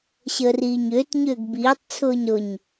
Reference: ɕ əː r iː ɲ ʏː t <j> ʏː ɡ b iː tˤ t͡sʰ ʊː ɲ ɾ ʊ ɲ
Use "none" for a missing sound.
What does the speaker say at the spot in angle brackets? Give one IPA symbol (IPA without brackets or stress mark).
ɲ